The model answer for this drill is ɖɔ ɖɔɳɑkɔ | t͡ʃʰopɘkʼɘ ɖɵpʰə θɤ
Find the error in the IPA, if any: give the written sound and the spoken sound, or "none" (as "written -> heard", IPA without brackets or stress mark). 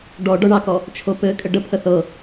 ɵ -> ə